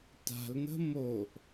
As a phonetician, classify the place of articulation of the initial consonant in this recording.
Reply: alveolar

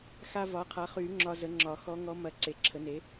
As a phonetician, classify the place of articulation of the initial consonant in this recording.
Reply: velar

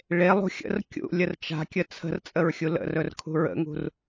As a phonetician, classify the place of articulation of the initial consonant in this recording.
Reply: retroflex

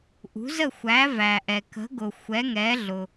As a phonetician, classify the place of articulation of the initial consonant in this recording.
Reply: glottal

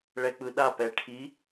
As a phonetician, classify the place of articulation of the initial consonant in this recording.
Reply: retroflex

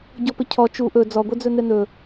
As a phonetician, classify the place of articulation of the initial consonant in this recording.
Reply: palatal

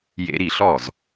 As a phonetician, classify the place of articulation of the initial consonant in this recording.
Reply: palatal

